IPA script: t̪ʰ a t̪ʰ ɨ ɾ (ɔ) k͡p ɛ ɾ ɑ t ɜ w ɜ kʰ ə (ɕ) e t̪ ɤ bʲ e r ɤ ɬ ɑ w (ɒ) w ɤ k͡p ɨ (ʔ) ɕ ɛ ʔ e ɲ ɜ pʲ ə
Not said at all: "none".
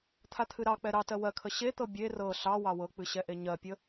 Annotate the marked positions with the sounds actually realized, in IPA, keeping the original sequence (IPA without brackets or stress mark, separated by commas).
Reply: ɑ, ɕ, ɑ, none